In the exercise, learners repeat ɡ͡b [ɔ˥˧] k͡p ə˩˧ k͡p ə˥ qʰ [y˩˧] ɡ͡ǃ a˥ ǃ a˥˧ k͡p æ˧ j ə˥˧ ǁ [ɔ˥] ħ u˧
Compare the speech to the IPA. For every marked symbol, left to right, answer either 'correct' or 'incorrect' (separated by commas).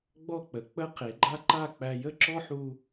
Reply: correct, incorrect, correct